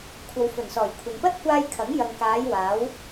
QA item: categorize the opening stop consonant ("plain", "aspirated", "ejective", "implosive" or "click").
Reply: aspirated